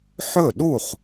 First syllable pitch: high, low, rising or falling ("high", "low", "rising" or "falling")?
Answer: falling